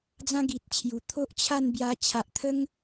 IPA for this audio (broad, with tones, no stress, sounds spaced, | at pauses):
d͡z ã˦ ɡ i˨ t̚ t͡ɕʰ j u˨˩ t̪ʰ o˦ ʔ t͡ɕʰ a˥˧ n b j a˧ t͡ɕʰ a˨ ʔ t̪ʰ ə˦ ŋ